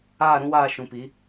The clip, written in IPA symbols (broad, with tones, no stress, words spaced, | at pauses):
aː˦˨ɾũ˦waː˦˨ ʃũ˨pi˨˦